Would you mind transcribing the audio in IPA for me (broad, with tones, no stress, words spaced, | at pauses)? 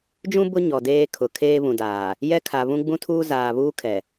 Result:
d͡ʒũ˦ bʊ˦ ɲɔ˨deː˦kʰʊ˨ kʰeː˦βũ˨daː˨ | jɛ˦kʰa˨βũ˦ ɡ͡bũ˦tʰuː˦zaː˨ βuː˦kʰɛ˨